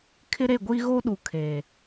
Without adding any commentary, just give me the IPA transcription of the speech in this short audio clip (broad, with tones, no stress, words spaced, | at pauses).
kʰɪ˦ɾe˦˨ɡʷiː˦ ɣoː˦ɗu˨ kʰeː˨